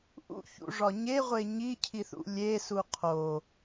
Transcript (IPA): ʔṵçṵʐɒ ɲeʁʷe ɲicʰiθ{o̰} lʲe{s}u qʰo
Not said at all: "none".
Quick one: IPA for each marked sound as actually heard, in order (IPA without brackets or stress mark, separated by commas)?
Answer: ṵ, s